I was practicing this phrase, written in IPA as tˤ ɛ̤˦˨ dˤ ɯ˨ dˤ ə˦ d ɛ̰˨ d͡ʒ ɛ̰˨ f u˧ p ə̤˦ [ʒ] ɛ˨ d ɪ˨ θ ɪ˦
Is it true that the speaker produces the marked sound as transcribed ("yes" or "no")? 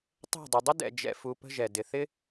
yes